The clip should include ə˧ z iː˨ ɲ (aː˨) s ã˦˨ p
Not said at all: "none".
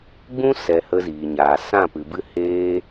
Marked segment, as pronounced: aː˨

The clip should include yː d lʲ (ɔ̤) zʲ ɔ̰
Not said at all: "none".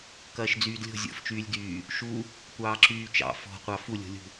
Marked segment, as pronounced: o̤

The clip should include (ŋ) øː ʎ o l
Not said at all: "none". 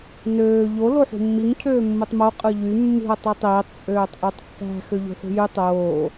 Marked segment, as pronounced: n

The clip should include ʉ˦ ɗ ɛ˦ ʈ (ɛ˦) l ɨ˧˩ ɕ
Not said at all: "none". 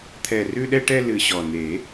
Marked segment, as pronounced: ɛ˦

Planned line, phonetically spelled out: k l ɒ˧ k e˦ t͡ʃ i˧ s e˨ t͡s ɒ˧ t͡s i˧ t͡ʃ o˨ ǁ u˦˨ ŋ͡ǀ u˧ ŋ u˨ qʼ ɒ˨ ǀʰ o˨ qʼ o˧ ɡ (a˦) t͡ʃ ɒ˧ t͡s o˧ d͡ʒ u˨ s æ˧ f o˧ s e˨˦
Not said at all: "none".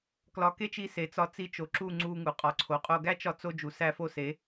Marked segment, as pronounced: æ˦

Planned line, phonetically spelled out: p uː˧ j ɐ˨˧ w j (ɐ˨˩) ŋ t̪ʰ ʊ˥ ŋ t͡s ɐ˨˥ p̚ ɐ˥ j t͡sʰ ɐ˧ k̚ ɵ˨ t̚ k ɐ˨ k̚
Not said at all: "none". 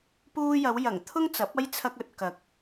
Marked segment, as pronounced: ɐ˨˩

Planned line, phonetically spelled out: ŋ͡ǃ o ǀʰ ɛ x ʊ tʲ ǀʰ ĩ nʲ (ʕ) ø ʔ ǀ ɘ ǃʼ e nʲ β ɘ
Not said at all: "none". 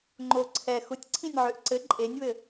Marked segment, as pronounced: ʕ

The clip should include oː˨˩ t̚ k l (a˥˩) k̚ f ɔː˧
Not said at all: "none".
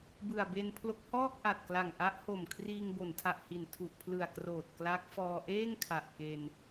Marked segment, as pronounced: a˦˥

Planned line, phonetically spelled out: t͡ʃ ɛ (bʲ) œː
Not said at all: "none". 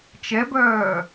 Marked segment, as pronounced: b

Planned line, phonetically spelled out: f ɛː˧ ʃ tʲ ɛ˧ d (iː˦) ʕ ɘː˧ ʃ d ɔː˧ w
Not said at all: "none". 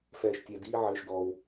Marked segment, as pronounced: iː˦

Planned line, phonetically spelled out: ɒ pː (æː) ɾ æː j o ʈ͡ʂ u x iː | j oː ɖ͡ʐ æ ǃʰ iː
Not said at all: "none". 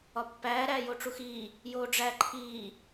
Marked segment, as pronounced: æː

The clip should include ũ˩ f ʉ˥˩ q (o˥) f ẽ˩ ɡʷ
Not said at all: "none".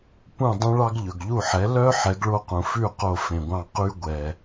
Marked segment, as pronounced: o˥˩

